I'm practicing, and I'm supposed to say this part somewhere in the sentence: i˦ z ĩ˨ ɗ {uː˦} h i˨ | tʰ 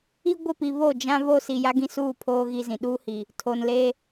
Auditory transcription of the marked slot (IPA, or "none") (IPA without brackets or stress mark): uː˦